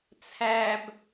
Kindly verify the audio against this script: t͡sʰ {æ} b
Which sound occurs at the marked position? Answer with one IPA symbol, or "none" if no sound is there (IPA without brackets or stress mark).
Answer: æ